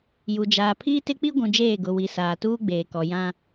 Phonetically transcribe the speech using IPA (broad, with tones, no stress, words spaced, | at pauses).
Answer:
ju˨d͡ʒaː˨ pʰiː˦tɪ˦k͡pi˦ɡʷũ˨ d͡ʒeː˦˨ɡʊ˨wi˨ saː˨tuː˦ɡ͡beː˨kɔ˨ jã˦